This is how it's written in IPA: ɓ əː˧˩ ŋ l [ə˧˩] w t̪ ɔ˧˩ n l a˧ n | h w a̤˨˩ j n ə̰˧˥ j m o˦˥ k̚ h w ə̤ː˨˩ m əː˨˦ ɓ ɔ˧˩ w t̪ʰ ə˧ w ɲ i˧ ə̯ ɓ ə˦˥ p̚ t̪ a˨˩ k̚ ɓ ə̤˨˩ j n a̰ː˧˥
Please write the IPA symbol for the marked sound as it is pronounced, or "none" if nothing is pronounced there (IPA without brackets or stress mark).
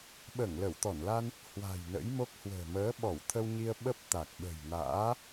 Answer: ə˧˩